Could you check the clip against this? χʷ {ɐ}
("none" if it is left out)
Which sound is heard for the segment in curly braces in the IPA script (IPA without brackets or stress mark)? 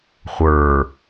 ə˞